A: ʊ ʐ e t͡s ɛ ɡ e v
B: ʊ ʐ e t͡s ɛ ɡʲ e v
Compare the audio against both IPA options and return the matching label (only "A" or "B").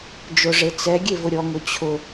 B